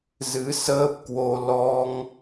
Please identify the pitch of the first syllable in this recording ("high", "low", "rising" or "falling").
rising